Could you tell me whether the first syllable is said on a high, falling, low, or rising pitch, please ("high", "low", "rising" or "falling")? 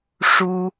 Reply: high